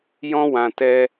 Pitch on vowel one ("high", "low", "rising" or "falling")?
high